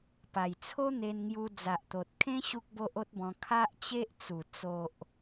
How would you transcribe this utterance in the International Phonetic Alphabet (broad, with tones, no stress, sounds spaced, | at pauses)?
p a˨˩ j t͡sʰ o˦ n̪ e˧ n ŋ j u˧ d͡z a˨ ʔ t̪ o˨ t̚ kʰ ẽ˦ ɕ u˦ k̚ b o˦ ʔ o˦ t̚ b ɔ̃˧ kʰ a˦ ʔ t͡ɕ e˦ ʔ t͡s u˨˩ t͡s o˨ ʔ